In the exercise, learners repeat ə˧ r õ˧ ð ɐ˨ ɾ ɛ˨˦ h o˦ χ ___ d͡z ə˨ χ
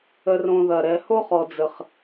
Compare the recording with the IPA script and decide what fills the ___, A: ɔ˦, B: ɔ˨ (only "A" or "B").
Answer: B